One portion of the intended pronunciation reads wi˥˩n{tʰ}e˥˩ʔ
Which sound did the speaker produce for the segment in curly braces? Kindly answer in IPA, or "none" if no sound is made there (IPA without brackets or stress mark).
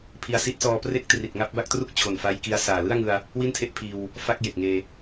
tʰ